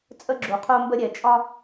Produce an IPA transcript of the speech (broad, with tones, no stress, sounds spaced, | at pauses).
t͡sʼ ə˥ ɡ͡ǁ u˩ qʰ o˥ m b ə˥ ɾʲ ɛ˩ t͡ʃʼ ɒ˥